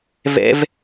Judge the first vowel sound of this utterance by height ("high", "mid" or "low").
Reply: mid